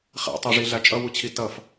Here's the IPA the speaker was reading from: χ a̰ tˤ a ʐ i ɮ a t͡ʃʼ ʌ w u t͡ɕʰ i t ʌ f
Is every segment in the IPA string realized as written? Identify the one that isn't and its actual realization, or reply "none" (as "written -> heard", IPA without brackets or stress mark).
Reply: none